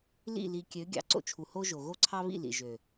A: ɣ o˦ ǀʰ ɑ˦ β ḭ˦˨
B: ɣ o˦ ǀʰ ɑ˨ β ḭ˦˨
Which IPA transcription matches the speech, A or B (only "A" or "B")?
A